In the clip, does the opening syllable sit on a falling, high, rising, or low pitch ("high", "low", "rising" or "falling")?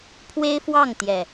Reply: high